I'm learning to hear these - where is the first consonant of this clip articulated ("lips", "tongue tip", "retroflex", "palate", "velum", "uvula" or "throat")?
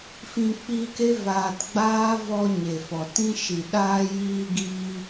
lips